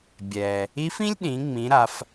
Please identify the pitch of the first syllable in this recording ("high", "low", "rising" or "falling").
low